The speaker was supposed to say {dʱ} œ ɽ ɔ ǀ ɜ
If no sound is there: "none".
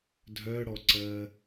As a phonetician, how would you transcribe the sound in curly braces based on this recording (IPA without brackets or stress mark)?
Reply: dʱ